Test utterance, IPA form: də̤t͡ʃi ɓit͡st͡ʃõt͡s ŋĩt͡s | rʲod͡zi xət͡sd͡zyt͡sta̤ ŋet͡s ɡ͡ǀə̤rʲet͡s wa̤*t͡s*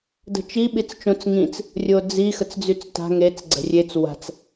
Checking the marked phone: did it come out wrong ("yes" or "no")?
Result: no